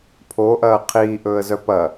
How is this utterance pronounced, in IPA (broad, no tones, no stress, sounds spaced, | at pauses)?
pʰ o ʔ ɐː qʰ iː ʔ ɵː ə̯ z œ p ɐ